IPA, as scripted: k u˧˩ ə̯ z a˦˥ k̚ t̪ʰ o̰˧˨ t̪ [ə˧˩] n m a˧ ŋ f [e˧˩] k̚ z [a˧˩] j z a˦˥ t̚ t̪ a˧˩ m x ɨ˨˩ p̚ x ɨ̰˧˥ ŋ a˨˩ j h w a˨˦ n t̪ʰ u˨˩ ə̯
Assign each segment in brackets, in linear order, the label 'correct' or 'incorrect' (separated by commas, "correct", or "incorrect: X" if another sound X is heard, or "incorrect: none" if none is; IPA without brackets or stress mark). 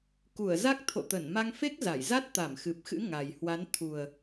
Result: correct, incorrect: e˦˥, correct